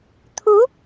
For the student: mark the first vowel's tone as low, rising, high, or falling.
rising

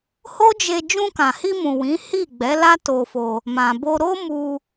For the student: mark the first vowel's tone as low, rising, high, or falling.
high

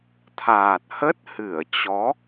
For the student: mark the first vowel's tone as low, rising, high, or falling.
low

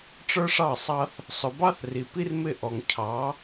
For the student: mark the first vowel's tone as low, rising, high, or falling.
high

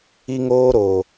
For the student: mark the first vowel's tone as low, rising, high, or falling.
high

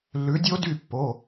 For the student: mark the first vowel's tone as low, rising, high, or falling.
rising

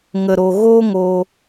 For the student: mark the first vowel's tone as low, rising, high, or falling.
low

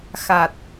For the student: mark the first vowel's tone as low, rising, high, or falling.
low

